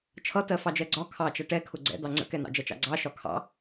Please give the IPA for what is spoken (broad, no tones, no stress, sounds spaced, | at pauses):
t͡ʃʰ ʌ t ɜ f ɑ d͡ʒ ɜ ɡ͡ǀ ɒ kʰ ɑ t͡ʃ ʌ ʈ ɛ kʰ ʊ ɡ͡ǀ ɛ̰ d̪ ɑ ŋ͡ǀ ə̰ k ɛ n ɑ̰ d͡ʒ ʌ t͡ʃ ɑ̰ ɡ͡ǀ ɑ ʃ ɒ kʰ ɑ̰